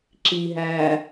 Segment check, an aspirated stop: absent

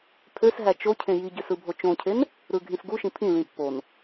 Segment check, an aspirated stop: present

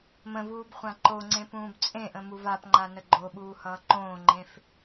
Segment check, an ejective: present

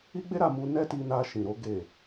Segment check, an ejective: absent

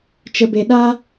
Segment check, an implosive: present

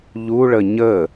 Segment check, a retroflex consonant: present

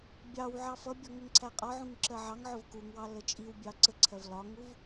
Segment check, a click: present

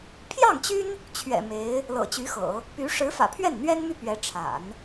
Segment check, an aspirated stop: present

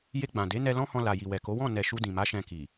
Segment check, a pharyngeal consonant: absent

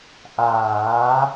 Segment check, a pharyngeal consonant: absent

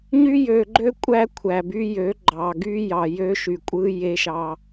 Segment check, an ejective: present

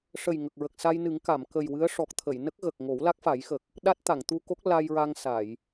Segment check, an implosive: present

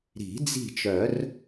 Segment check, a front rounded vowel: present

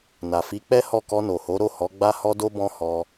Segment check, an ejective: absent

